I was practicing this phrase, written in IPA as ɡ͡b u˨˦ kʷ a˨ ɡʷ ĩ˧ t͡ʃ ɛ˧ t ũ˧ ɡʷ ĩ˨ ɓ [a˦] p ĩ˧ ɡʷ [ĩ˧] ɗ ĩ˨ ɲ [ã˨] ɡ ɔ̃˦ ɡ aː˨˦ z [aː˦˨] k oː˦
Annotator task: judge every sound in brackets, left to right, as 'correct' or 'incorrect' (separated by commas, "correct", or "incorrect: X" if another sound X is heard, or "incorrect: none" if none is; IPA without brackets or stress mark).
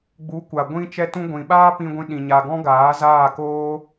incorrect: aː˦, correct, incorrect: a˨, correct